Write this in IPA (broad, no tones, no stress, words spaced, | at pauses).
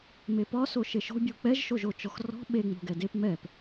mepɒ soʃeʃo̤ bʲuk͡pɛʒ ʃoʒot͡ʃɔxrɔ̤ ɓe ŋ͡mo̤ɡɛdep mɛp